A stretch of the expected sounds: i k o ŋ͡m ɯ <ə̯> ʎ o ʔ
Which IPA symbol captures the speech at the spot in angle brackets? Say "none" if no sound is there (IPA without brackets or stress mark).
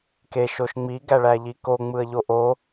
ə̯